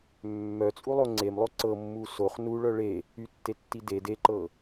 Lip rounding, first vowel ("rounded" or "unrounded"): rounded